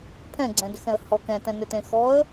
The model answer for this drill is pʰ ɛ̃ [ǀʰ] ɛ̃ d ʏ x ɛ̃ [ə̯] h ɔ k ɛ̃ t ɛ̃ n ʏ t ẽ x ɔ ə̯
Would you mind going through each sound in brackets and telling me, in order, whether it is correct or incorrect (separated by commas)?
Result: incorrect, correct